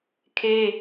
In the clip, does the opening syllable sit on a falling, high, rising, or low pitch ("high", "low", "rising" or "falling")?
high